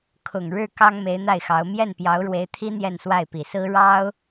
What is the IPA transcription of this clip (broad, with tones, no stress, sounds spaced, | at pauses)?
kʰ ʊ˨˩ ŋ ɻ ɻ̩˥˩ k ɑ˥ ŋ m e˧˥ ɪ̯ n̪ a˥˩ ɪ̯ x ɑ˧˥ ʊ̯ m j ɛ˥˩ n p j ɑ˧˥ ʊ̯ ɻ w e˧˥ ɪ̯ t̪ʰ i˥ n̪ j ɛ˥˧ n s w a˥˩ ɪ̯ p i˨˩ s ɹ̩˥ ɻ ɑ˥ ʊ̯